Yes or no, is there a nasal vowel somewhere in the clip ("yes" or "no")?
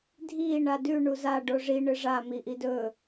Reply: no